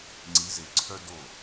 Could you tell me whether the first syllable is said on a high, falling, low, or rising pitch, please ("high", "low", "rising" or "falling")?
rising